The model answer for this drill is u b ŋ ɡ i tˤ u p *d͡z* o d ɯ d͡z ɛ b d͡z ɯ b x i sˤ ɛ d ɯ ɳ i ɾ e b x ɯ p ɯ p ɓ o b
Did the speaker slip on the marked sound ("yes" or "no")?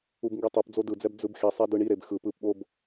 no